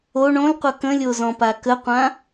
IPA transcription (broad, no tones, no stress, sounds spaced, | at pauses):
o ɳ õ l qʷ ʌ k ə̃ lʲ o z ɔ̃ p a k ə qʷ ã